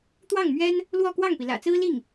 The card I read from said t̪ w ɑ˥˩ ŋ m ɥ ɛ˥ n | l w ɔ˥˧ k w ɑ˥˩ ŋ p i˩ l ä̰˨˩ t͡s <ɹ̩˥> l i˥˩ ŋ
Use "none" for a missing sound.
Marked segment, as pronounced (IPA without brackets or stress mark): ɹ̩˥